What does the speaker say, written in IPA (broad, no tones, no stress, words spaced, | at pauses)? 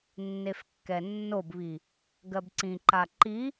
nːefkːɛnːobβi | ɡɜbǀĩǃa ǃi